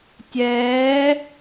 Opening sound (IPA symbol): tʲ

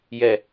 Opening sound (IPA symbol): j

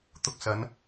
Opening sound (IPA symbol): t̪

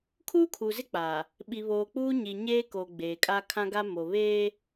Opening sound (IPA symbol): kʰ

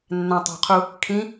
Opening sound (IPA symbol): nː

